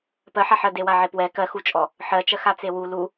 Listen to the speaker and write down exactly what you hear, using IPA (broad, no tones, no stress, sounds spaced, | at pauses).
p ɜ ħ a ħ ɜ d e w a ʕ e p w ɛ k ɜ x u t͡ʃʼ ɔ | ħ ɜ t͡ʃ ɜ x a t͡s e w u l u